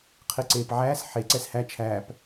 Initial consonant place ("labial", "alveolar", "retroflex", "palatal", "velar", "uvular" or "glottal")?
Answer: uvular